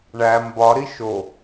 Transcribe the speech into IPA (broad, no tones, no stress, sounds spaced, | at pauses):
ɳ æ m b ɒ ɾ i ʃ o